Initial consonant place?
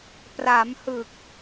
labial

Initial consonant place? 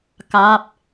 velar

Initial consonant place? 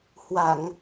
glottal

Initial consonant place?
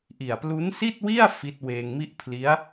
glottal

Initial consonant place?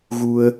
velar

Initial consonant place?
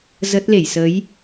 alveolar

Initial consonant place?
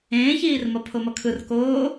palatal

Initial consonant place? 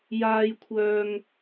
palatal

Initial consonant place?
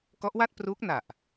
velar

